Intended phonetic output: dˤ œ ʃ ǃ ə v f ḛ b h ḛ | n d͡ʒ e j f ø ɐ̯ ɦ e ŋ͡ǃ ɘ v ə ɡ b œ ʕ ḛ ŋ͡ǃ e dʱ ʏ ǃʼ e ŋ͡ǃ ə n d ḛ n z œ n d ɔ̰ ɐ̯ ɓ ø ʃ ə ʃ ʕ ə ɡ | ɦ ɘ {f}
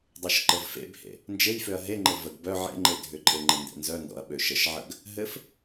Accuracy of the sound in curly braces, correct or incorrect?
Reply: correct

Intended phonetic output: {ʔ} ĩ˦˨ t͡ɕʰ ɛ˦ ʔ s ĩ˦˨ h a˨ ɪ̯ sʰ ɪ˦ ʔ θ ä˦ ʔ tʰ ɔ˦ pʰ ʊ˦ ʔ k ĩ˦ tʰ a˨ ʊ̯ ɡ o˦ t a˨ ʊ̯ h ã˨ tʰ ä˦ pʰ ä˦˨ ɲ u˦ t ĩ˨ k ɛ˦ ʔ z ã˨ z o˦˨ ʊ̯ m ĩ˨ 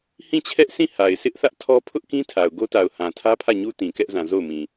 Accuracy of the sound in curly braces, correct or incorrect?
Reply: incorrect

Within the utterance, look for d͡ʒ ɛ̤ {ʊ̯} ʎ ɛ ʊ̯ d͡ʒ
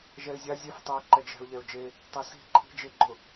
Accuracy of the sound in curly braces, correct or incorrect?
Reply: correct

